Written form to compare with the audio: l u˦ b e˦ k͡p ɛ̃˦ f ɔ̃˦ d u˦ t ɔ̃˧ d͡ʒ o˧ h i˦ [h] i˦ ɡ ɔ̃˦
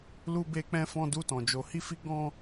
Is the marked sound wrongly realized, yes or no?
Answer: yes